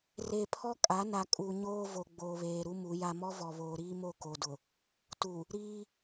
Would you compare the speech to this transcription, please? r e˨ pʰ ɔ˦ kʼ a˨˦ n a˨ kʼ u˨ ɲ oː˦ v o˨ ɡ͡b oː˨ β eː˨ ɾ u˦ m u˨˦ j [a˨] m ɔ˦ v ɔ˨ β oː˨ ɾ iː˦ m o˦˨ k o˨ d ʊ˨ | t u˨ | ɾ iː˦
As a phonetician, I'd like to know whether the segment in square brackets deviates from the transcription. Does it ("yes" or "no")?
yes